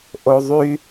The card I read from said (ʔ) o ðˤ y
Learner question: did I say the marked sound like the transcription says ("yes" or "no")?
yes